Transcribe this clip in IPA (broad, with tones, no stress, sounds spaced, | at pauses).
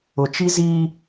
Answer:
ʊ˨ t͡ʃ i˦ z i˦